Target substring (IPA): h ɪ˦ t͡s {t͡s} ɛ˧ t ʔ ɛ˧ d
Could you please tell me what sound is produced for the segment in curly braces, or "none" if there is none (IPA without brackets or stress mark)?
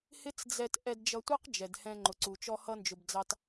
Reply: d͡z